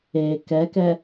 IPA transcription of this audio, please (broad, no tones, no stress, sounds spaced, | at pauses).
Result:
e k ɛ k ɛ